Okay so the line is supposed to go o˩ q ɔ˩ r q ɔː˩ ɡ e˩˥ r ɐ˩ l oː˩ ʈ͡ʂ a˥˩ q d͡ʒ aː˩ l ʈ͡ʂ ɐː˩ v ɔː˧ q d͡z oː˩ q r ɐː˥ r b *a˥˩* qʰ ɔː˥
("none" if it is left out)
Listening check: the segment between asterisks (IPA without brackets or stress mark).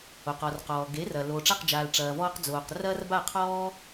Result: a˥˩